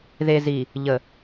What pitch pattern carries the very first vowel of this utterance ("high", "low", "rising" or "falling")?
low